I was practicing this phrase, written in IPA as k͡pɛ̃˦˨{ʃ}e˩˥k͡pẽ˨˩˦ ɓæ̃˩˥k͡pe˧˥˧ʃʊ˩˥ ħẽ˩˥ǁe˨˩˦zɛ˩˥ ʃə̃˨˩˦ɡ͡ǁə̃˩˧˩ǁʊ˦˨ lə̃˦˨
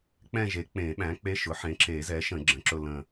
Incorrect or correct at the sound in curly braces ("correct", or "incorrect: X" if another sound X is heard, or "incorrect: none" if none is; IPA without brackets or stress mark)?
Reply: incorrect: ʒ